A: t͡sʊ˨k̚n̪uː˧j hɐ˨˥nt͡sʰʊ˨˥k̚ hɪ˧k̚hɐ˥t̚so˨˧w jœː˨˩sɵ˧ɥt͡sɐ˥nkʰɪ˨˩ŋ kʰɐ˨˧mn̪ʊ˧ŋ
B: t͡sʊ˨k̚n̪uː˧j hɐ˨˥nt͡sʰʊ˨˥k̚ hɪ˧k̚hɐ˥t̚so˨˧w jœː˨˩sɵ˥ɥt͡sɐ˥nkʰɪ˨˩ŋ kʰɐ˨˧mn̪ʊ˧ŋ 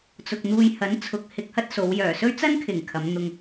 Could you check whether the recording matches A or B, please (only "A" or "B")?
B